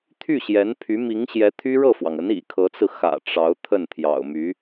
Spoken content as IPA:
t̪ʰ y˥˩ ɕ j ɛ˧˥ n pʰ y˧˥ m i˧˥ ŋ ɕ j ɛ˧˥ t̪ʰ y˥ ɻ ɤ˥˩ f w ɑ˩ ŋ ə˧˥ n ḭ˨˩ kʰ ɤ˧˥ t͡s ɹ̩˧ x ä̰˨˩ ʈ͡ʂ ɑ˧˥ ʊ̯ t̪ʰ ə˥˩ n t̪ʰ j ɑ̰˨˩ ʊ̯ m y˧˥

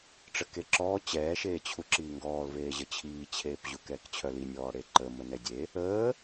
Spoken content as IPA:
ʈ͡ʂ ə k e ǁ ɔː t͡ɕ ɛː ʃ eː t͡ɕʰ u ǁ iː ŋ ɡ ɔː l v eː ʑ ə t͡ɕʰ iː t͡ɕʰ eː p ʑ u k ɛː k t͡ɕʰ œ l i nʲ ɔː ɽ e ǃ ə m ə n ɛ dʲ e | əː

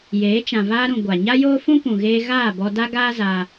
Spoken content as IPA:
j eː˨˦ t͡ʃ ã˨ v aː˧ ɾ ũ˨ ɡʷ a˨ ɲ a˦ j oː˦ f ũ˦ p ũ˨ ɣ eː˧ ɣ aː˦˨ b ɔ˧ d a˦ ɡ aː˦ z aː˧

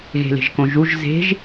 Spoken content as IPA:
ɣ e̤ l e̤ ʒ k õ ʒ u ʒ z e̤ ʒ

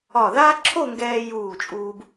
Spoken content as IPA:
ɒ˧˩ ð aː˥ ǁʰ o˥˧ ŋ ɡ ɛː˧ j uː˧˩ t͡ʃʼ uː˧ b

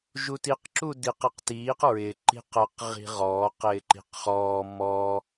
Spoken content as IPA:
ʒ u t i q ǁ u d i q i q t iː q ɹ ɪ ǃ i̤ q ə q ʁ i̤ ʁ ɔː q ɪː ǃ i̤ q χ ɔː m ɔː

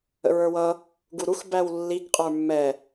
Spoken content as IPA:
ə̰ ɹ ə˞ w ʌ | ɡ u ɾ u x b æ w lː i ɡ qʼ ə˞ mː ɛ

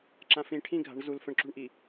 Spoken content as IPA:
ǁ ã f ĩ ʈʰ ĩ ɡʱ a̤ ɳ z u l f ə̃ ɳ ǁ ṳ ɳ ʔ i

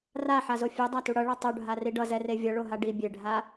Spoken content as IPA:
r a ħ a z o fʲ e dˤ a t u ɽ ʌ ɭ ʌ tˤ o ɖʱ a r i ɖ ʌ z ɛ r e vʲ ʌ ɭ o ɦ a ɖ i bʲ e ɖʱ a

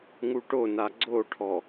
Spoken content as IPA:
ŋ u ʈ o n a ɡ͡ǀ o ʈʰ ɔ

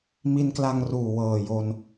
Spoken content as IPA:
m i˧ n k l a˧ ŋ r uː˨˩ w ɤː˨˩ j o˧ n

